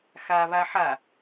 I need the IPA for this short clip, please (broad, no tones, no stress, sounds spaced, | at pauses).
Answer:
x a β a ħ a